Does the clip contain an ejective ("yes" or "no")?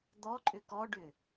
yes